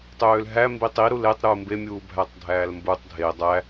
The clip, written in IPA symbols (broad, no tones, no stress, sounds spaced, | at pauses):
tˤ øː l ɦ æ m b i tˤ i ɾ u l e tˤ ɾ uː m b e mʲ uː bʱ æ tˤ dʱ æː l m b u tˤ dʱ e dˤ æ